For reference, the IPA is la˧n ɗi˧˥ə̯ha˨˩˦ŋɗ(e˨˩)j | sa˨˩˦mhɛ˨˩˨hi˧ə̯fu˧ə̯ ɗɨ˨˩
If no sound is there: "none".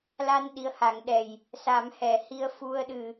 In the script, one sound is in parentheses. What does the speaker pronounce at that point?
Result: ɛ˨˩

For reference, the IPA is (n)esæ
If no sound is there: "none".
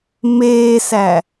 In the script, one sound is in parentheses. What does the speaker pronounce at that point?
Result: m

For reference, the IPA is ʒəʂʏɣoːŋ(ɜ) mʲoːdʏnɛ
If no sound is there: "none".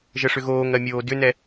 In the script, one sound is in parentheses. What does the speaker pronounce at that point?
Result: ɜ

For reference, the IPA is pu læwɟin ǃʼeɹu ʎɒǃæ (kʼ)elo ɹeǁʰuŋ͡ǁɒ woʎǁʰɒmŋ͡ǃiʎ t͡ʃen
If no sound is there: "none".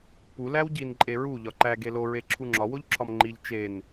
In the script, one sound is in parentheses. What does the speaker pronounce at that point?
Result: ɡ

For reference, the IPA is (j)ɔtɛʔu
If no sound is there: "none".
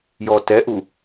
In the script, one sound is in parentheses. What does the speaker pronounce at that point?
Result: j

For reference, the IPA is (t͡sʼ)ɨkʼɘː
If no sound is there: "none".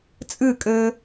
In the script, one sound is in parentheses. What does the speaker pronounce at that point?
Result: t͡sʼ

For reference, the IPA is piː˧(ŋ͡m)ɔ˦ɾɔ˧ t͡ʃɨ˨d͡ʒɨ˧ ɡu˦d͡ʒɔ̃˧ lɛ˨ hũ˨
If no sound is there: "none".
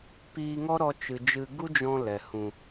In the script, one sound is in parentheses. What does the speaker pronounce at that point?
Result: ŋ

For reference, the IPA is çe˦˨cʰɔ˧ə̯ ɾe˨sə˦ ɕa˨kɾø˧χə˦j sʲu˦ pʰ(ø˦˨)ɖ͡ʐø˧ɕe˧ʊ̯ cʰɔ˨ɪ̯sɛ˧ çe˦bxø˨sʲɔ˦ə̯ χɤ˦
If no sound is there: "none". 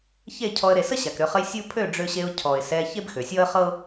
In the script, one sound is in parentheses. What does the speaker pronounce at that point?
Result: ø˦˨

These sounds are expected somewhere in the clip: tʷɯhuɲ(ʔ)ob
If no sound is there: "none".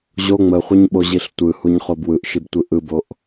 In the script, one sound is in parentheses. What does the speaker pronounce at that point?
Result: χ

